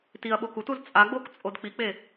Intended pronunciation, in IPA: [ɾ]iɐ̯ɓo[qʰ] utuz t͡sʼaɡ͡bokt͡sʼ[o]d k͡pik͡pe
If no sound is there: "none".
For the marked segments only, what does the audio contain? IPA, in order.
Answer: t, k, o

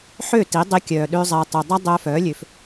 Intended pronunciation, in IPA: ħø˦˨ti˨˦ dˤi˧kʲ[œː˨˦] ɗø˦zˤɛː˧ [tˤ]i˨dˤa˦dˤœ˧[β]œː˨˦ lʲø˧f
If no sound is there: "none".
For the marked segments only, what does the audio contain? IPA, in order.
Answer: œː˨, tˤ, f

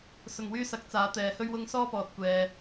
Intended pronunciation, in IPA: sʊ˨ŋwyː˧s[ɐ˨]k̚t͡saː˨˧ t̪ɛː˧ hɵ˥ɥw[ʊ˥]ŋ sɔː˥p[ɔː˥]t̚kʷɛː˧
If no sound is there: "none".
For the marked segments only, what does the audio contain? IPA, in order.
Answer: ɐ˨˥, ʊ˥, ɔː˧

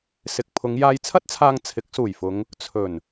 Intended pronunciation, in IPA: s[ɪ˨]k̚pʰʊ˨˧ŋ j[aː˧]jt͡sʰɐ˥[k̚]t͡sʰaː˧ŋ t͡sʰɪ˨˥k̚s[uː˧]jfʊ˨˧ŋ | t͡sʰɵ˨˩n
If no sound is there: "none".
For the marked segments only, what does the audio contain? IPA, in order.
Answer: ɪ˨, aː˧, t̚, uː˨˩

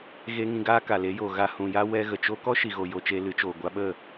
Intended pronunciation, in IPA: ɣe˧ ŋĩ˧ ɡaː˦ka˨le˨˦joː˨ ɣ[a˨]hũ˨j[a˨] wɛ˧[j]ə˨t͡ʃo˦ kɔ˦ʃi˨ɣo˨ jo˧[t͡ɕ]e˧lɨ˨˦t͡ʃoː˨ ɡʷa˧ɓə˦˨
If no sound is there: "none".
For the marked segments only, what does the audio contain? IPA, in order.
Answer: a˧, a˦, ɣ, t͡ʃ

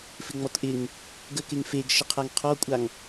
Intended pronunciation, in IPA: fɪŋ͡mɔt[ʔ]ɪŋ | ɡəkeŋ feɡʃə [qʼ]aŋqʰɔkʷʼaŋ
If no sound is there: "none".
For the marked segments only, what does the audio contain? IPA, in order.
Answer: ʔ, qʰ

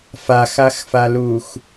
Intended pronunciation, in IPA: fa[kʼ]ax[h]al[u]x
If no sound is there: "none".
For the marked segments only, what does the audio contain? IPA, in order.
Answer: x, f, u

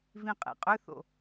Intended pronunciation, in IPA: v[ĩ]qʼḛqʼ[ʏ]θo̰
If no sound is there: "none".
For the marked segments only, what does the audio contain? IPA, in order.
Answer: ĩ, ʏ

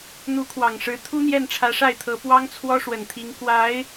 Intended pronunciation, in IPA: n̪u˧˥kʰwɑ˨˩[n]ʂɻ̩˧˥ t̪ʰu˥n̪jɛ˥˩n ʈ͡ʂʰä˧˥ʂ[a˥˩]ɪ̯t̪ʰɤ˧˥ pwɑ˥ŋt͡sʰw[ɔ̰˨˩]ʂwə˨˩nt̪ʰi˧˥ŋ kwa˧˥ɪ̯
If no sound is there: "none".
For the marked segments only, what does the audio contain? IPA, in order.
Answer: ŋ, a˥˩, ɔ˥

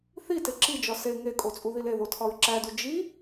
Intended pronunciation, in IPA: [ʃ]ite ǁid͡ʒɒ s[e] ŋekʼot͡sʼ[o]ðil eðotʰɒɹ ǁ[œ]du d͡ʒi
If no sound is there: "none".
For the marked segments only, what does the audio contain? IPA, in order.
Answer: θ, e, u, æ

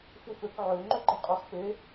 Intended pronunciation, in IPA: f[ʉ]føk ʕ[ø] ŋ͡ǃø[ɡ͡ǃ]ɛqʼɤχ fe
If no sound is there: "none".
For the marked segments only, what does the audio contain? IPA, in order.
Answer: u, ø, ɡ͡ǃ

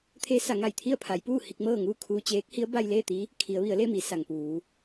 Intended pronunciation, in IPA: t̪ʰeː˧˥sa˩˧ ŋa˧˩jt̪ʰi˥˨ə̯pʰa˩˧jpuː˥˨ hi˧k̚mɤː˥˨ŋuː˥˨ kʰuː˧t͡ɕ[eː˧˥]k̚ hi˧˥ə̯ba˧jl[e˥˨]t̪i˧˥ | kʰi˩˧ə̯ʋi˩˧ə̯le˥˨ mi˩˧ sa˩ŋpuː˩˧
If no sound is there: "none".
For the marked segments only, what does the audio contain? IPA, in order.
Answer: eː˧˥, eː˥˨

